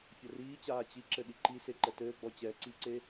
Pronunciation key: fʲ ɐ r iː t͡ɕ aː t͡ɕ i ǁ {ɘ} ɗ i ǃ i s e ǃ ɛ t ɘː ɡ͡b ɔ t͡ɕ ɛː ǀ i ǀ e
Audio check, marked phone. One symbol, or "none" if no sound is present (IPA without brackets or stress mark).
ɘ